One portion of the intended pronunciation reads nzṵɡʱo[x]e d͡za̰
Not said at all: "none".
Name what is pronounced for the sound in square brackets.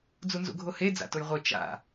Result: h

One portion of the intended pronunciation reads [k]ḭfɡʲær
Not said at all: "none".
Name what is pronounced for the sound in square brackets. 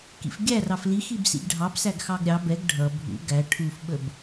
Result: k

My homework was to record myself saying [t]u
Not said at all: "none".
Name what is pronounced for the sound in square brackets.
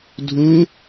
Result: dʱ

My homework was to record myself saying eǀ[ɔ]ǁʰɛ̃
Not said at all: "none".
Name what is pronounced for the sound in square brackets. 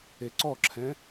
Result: ɔ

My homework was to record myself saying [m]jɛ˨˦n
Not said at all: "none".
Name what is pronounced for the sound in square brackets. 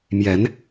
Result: m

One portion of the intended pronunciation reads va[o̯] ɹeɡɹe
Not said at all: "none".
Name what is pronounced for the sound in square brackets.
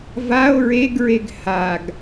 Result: o̯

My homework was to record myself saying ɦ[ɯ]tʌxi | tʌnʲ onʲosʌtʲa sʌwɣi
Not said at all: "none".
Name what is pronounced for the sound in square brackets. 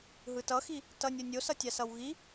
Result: ɯ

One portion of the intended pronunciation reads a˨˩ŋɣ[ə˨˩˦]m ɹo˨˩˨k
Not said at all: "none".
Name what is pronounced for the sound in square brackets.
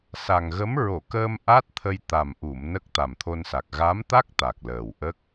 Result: ə˧˥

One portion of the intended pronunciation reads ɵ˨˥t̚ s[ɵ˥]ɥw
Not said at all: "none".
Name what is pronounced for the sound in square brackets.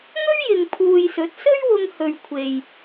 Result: ɵ˥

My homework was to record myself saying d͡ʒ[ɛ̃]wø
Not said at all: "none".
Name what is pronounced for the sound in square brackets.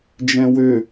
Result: ɛ̃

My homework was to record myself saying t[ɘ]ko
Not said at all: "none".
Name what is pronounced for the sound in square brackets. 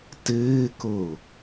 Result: ɘː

